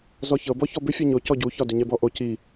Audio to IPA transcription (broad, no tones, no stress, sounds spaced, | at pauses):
z ɔ ç ɤ b ɔ ç ɔ b ʏ fʲ ɤ ɲ o c ɔ ɟ u ç ɒ d ʏ ɲ ɛ b ɔ ʔ o c i